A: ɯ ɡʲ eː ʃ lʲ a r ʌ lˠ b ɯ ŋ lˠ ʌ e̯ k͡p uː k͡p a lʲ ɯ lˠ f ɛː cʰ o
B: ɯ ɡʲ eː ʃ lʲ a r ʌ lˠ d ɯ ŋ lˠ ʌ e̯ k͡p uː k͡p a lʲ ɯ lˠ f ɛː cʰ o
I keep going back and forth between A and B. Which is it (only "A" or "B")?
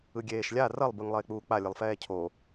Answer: A